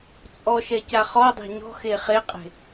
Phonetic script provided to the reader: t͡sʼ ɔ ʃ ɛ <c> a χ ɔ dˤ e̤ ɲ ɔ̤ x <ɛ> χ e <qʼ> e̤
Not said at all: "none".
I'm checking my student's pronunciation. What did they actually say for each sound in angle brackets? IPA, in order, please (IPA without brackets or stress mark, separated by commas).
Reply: c, e, qʼ